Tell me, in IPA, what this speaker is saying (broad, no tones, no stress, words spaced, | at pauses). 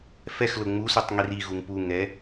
fɛx lʊŋ͡musutˤ ŋiriɣuŋ puŋɛ